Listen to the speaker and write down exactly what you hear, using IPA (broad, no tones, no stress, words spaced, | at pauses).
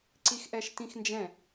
ǀixʔɛʃtĩxnd͡ʒɛ̃